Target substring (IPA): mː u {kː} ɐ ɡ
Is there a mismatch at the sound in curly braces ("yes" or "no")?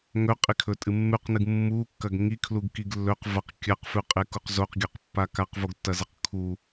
no